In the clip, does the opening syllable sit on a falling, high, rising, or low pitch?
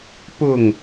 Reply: falling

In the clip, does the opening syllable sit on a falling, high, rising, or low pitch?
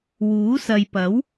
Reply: rising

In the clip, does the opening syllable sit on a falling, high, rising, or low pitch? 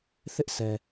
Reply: high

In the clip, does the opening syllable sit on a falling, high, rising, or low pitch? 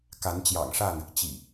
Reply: rising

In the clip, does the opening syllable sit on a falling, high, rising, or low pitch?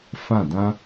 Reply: falling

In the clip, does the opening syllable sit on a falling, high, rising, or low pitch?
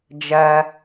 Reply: high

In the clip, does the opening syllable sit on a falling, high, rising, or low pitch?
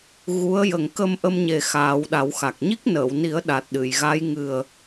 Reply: rising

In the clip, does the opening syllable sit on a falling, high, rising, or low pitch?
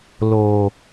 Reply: low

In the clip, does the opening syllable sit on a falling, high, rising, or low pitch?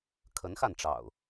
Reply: rising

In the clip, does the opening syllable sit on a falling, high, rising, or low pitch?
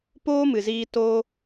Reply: high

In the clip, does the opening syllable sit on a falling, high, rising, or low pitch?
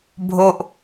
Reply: low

